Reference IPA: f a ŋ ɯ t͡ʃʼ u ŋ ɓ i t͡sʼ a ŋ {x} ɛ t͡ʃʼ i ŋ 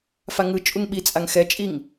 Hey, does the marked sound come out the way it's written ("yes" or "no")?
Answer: yes